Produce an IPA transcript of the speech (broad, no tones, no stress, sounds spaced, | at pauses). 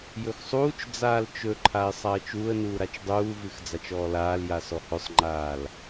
j ɵ x sˤ uː t͡ʃ d͡z aː l t͡ʃ ɵ ǃʰ a ɪ̯ sˤ a ə̯ t͡ʃ uː ə̯ n uː ɾ a t͡ʃ dˤ uː v ɨ x d͡z a t͡ʃ ɔː l aː l j a s ɔ h ɵ sˤ ŋ͡ǃ aː l